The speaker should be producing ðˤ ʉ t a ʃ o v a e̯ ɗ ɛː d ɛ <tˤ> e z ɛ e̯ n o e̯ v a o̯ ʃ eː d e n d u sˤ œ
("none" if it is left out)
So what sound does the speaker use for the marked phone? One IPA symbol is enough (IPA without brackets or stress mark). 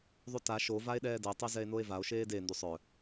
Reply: tˤ